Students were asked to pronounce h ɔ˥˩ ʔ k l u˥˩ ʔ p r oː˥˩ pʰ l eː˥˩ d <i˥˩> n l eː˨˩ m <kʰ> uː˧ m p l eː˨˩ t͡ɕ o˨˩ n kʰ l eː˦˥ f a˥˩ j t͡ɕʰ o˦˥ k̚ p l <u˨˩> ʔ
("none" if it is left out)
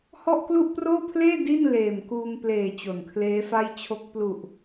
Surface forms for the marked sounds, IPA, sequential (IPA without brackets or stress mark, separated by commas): i˥˩, k, u˨˩